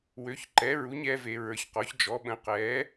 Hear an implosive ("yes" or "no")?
yes